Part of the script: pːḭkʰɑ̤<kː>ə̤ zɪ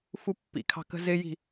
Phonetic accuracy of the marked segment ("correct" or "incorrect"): incorrect